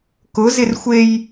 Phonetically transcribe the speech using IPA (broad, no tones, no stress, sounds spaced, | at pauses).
k ʊ z ɪ r xʷ e j